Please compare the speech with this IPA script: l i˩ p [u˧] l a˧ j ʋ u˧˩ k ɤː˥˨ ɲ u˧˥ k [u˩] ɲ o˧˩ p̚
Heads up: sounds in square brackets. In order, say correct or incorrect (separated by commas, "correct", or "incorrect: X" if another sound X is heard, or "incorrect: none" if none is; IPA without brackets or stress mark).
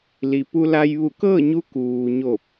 correct, incorrect: uː˩